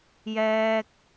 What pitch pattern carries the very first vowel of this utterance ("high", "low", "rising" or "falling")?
high